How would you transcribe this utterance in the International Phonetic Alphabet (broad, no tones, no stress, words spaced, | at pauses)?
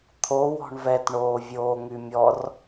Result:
t̪ʰo wɔ̤ɳvɛt ɳoːvʲoːŋymʲɔr